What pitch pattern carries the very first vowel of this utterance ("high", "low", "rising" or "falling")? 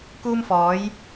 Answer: high